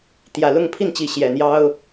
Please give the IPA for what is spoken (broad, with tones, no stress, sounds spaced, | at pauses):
t̪ j ä˨˩ l ʊ˥˨ ŋ pʰ i˥˨ n t͡ɕ i˨˦ ɕ j ɛ˨˩ n̪ j ɑ˦ ʊ̯